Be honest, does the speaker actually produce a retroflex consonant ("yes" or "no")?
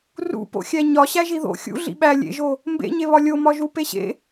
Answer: no